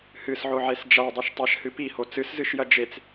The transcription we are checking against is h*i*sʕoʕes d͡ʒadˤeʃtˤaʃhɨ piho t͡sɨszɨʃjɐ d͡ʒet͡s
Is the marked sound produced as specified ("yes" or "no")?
no